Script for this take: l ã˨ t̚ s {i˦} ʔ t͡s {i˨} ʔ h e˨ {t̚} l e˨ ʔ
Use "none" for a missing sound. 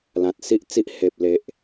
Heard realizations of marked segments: i˦, i˦, p̚

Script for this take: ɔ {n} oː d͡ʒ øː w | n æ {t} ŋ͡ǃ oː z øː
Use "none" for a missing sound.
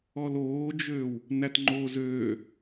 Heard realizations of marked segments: l, t

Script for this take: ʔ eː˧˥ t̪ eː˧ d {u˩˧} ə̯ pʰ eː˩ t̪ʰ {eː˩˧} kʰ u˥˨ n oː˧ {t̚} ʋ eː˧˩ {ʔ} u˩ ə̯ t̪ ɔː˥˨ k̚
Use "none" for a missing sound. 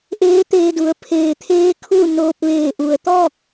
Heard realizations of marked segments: u˩˧, eː˧, p̚, ʔ

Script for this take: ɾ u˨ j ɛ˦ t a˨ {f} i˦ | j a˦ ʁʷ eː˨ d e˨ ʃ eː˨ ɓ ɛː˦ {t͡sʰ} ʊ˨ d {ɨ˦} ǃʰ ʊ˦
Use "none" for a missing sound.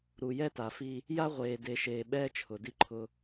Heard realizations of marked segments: f, t͡ʃʰ, i˦

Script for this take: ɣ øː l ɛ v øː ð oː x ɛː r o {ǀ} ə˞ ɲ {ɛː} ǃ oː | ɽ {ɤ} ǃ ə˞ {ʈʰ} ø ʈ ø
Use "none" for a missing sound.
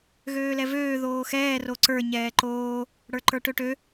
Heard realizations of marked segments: ǀ, ɛː, ə˞, ʈ

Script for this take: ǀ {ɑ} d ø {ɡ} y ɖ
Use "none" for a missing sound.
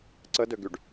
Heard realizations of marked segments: ə, ɡ

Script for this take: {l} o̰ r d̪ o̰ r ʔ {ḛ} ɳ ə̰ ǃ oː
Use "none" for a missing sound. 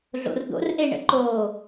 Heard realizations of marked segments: ɮ, e

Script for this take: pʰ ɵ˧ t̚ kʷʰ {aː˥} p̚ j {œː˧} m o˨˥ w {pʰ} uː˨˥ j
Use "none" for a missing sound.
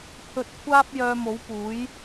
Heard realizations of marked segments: aː˥, œː˧, p

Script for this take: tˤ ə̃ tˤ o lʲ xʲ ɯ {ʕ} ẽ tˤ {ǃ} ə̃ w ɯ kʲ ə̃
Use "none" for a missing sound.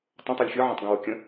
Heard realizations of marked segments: ʕ, ɡ

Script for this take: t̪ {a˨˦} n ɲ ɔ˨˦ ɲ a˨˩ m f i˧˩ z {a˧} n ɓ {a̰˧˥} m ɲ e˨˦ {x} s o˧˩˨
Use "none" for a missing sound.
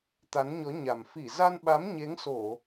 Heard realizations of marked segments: a˨˦, a˧, a˨˦, ŋ

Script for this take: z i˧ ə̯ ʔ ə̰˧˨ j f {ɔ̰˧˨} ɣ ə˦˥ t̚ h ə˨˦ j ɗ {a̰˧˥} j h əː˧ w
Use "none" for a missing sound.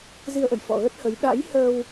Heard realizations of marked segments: ɔ̰˧˨, a̰˧˥

